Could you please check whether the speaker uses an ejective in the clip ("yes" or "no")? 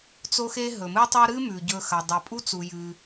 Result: yes